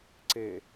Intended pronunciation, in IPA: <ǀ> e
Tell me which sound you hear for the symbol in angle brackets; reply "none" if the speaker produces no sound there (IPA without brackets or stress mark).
ǀ